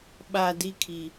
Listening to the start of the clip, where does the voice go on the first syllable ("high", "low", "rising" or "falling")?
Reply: low